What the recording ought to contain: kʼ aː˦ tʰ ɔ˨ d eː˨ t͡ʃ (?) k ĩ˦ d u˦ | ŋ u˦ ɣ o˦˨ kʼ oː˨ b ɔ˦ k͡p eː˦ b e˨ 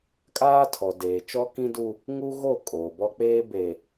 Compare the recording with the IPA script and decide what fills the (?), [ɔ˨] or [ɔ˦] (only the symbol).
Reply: ɔ˦